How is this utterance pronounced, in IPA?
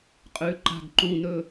qʼʉ˨˦ǃa̤˦˨ɡǃũ˧˥˧nɵ˥

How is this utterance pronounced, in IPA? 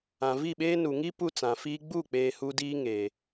ã˨vi˦˨ɓeː˦ nu˨ŋi˦ pu˦t͡sã˨fiː˦ ɡ͡bu˦˨k͡peː˨ hu˦diː˦ŋeː˨

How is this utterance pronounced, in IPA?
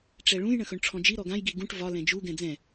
ʈ͡ʂɛɭũj ɳə̃xɵɳʈ͡ʂʰɔ̃d͡ʒi ɾɔɡãj ɡiɡũʈ vɒ lɛ̃d͡ʒu ɡɛ̃d͡zɛ̃

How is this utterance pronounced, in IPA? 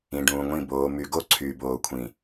ĩ˨ɖũː˨ŋʷĩ˦˨ boː˨my˨ ɡo˦ ǀʰy˨ boː˨kʷʰĩ˨

